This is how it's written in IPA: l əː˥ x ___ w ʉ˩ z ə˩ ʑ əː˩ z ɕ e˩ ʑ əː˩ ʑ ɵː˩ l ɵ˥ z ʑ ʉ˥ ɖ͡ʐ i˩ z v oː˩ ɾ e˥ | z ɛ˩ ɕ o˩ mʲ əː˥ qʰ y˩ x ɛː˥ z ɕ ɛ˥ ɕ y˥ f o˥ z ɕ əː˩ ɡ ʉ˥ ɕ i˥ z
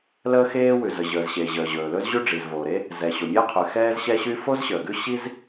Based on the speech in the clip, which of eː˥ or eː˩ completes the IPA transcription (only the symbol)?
eː˥